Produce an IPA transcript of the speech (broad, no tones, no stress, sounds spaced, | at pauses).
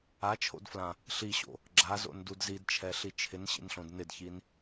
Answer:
a t͡ʃʰ o̰ d f l ã | ɬ i ɕ o̰ | ɡ͡ǁ a z o̰ n d u d z i d t͡ʃʰ ɛ ɬ i t͡ʃʰ ɪ n ɕ ḭ n ɬ õ d n ɪ d ç i n